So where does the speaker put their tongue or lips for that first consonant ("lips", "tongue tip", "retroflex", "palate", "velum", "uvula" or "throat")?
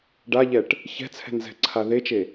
retroflex